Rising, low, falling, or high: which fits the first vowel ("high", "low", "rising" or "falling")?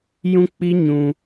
high